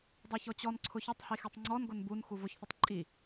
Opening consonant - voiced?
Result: yes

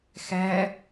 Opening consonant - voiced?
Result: no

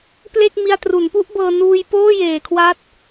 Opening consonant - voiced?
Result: no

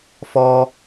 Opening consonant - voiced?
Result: no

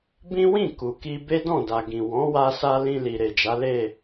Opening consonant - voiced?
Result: yes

